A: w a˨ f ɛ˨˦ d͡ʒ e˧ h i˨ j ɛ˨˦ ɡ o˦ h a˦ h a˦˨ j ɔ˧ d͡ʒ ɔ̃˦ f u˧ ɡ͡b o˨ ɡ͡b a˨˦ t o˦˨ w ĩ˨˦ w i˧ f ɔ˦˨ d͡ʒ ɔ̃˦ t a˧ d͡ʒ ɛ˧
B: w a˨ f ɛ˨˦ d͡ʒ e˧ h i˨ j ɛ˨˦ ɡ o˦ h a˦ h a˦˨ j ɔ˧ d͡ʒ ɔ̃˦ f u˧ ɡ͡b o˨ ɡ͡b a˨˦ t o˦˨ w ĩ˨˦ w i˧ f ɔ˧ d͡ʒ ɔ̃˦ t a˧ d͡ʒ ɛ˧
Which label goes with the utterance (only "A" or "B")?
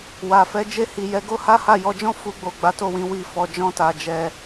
B